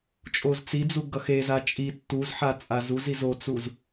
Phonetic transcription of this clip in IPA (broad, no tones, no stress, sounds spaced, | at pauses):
t͡ʃʼ o z t͡s i d͡z u ɡ ʌ x e z a t͡ʃʼ i tː u z ħ a t͡sʼ a z u z i z o t͡s u z